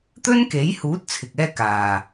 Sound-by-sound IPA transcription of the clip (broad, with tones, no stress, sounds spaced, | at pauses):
t̪ ɵ˥ n k e˨˥ j h uː˨˥ t̚ t͡sʰ ɪ˨ k̚ ɛː˥ k aː˨˩